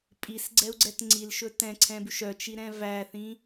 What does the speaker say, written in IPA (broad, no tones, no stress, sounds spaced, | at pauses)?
pʼ i s ɡ͡ǀ ɛ u̯ ɡ͡ǀ ɛ t ŋ͡ǀ i l ʃ ɵ t ɛ̃ ǀʰ ɛ̃ b ʉ ʃ œ t͡ʃ i ɾ ɛ̃ v æ θ ĩ